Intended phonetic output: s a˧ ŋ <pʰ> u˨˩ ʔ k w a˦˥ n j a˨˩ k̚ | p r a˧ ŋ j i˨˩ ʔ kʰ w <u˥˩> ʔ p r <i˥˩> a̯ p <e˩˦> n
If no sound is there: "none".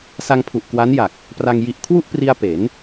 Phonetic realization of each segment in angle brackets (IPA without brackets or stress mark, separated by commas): pʰ, u˥˩, i˧, e˩˦